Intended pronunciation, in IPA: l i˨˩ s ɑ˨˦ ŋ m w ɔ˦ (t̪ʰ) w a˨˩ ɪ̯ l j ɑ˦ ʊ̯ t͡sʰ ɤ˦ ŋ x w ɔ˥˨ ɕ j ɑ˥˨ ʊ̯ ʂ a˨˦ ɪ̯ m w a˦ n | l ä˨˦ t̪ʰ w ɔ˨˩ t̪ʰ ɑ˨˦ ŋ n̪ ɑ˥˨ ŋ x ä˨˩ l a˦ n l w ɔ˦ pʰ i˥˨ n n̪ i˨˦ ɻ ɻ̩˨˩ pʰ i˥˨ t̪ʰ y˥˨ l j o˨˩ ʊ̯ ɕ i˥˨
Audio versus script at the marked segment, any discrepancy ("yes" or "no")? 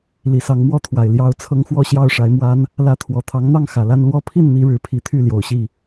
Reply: no